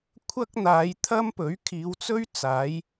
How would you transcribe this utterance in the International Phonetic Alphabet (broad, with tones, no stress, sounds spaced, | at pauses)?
kʷʰ ɐ˥ k̚ n̪ aː˨˧ j t̪ʰ ɐ˥ m p ɵ˨˥ ɥ kʰ iː˨˧ w t͡s ɵ˥ ɥ t͡s aː˨˥ j